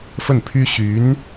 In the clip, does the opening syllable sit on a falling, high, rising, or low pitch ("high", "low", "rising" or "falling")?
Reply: falling